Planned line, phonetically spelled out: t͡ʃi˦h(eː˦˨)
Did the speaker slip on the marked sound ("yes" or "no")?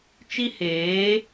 yes